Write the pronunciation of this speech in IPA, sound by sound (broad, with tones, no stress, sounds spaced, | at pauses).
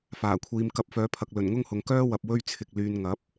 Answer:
f aː˨˩ kʷʰ iː˨˧ m k ɐ˧ p̚ f œː˨˧ pʰ ɐ˨ k̚ l ɵ˨˩ n ŋ ʊ˥ ŋ h ʊ˨ ŋ k œː˥ w ɐ˨ p̚ w ɵ˥ ɥ t͡sʰ ɪ˨ k̚ l yː˨ n ŋ ɐ˨˥ p̚